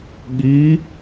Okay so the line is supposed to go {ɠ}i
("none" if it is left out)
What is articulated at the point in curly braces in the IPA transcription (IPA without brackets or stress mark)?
ɠ